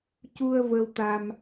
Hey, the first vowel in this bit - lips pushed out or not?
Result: yes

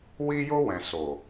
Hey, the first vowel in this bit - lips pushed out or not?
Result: no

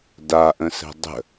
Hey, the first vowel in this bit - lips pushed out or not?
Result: no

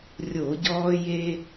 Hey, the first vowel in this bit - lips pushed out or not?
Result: yes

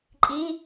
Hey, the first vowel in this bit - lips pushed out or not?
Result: no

